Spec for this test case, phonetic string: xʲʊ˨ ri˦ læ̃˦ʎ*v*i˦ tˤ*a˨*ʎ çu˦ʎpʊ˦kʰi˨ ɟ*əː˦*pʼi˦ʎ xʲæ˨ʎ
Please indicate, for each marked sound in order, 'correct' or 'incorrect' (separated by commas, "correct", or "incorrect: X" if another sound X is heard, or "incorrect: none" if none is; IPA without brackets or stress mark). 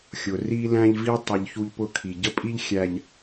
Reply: correct, incorrect: ə˨, incorrect: ə˦